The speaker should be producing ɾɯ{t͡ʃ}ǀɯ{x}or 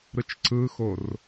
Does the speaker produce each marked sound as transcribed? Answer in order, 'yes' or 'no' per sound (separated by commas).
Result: yes, yes